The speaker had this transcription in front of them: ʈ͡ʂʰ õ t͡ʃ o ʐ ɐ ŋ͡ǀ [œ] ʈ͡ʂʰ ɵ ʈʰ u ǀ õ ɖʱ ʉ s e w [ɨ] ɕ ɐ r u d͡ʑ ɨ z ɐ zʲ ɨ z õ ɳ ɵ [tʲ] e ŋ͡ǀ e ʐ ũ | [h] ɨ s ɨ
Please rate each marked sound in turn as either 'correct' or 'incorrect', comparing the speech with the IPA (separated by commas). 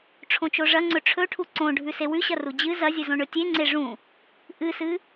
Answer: incorrect, incorrect, correct, incorrect